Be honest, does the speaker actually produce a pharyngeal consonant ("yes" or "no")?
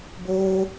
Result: no